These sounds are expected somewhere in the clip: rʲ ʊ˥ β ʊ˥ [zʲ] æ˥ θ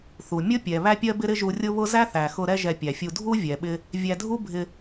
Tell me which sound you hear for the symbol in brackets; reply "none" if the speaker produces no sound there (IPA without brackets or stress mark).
z